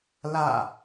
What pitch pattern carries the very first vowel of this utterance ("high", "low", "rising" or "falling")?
falling